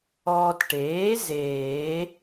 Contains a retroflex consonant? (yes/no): yes